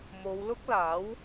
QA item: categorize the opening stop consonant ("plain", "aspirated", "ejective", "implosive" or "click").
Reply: plain